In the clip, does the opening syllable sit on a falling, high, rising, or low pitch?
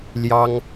high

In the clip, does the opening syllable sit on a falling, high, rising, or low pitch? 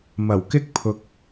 low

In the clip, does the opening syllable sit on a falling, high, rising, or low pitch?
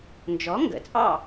rising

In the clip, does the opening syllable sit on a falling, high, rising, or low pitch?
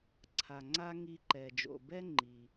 low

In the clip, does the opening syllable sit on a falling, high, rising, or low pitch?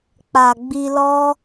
low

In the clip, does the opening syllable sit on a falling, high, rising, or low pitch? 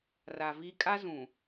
low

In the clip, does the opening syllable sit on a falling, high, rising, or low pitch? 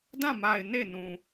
falling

